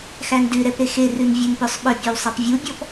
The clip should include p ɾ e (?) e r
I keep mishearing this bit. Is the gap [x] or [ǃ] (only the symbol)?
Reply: x